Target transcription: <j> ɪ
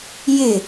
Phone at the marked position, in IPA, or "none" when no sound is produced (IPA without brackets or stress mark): j